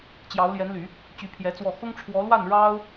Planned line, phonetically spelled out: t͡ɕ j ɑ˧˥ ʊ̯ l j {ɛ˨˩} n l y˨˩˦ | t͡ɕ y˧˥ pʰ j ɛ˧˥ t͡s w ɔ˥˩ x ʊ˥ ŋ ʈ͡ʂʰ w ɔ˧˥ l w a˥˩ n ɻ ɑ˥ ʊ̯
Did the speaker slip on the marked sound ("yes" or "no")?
yes